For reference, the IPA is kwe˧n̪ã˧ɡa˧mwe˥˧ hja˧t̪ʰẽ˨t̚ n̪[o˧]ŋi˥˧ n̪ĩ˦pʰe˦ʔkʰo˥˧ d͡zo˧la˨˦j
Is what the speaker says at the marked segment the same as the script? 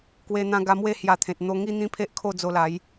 yes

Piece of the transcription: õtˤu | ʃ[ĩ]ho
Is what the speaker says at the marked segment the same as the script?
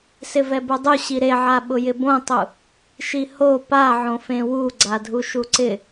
no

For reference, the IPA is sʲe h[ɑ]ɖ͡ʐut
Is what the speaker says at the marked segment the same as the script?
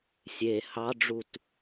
yes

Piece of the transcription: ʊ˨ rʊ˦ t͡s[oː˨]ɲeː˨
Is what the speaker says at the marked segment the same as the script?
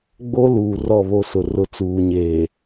no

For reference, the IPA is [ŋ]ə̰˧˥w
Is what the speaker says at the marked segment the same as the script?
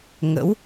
yes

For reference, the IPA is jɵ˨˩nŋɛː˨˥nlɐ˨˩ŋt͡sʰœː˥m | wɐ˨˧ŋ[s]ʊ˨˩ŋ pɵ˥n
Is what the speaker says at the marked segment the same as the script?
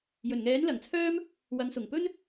yes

